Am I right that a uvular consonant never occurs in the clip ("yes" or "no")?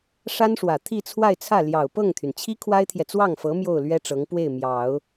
yes